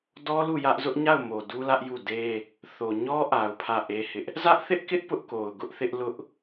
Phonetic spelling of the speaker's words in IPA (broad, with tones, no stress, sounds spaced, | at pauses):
d ɔ˦ l u˦˨ j ä˦ ʔ z ʊ˦ ʔ ɲ a˦˨ ʊ̯ m o˨ d u˦ l ä˦ ʔ j u˦˨ d e˦ | θ o˨ ɲ ɔ˦ ʔ a˨ ʊ̯ pʰ ä˦˨ ʔ e˦ h ɪ˦ ʔ | z ä˦ ʔ θ ɪ˦ ʔ k ɪ˦ ʔ p ʊ˦ ʔ k o˨ ʊ̯ ɡ ʊ˦ ʔ θ ɪ˦ ʔ l ʊ˦ ʔ